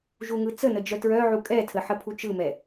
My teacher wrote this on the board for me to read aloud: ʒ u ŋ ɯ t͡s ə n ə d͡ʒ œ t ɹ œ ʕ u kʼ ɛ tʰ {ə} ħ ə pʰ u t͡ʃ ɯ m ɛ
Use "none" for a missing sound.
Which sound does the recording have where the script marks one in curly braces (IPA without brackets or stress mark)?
ə